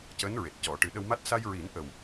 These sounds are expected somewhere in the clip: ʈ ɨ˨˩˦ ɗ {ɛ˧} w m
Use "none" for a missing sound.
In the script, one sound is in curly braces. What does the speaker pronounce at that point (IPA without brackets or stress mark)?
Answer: ə˧